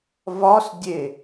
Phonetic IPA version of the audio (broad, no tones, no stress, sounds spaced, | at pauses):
v ɒ s dʲ e